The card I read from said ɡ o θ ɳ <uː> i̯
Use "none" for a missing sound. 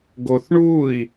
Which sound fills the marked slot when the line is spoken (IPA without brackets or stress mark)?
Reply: uː